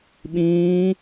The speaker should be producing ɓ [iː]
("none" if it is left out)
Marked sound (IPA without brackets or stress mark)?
ĩː